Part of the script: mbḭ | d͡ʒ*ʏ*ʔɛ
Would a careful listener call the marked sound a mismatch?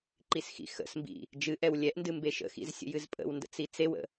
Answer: yes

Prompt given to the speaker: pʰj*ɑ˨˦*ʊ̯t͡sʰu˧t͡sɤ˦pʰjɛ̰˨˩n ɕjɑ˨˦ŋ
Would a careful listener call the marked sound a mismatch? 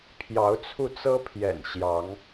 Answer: no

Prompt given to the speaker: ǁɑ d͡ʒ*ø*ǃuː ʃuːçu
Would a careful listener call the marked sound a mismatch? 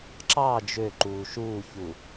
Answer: no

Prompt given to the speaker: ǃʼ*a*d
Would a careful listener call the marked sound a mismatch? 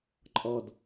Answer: yes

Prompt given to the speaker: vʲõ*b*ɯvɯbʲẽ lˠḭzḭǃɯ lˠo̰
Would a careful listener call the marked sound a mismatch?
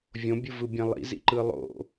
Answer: yes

